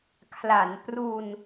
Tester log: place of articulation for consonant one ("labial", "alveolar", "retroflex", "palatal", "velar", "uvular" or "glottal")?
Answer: velar